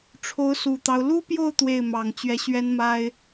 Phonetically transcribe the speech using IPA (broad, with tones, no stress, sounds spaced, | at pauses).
ʈ͡ʂʰ o˧˥ ʊ̯ s u˨˩ t̪ ɑ˦ ʊ̯ l u˥ p j o˥˧ ʊ̯ t̪ w e˥˩ ɪ̯ m ɑ˨˩ ŋ t͡ɕ ɥ ɛ˧˥ ɕ ɥ ɛ˥ n m a˥ ɪ̯